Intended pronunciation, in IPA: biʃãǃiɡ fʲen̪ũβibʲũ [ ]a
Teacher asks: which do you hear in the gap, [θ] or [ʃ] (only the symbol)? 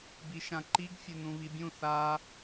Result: θ